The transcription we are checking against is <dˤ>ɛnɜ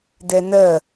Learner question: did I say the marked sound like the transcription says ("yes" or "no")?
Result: no